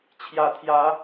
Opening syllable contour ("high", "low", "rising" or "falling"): rising